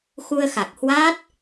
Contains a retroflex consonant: no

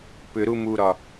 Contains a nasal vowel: no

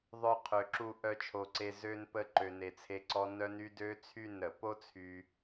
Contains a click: yes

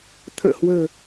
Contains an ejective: no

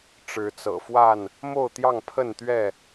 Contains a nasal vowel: no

